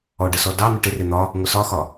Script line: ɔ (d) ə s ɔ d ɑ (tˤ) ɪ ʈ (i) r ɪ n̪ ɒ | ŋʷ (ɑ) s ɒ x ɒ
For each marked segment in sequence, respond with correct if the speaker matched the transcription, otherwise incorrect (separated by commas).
incorrect, incorrect, incorrect, incorrect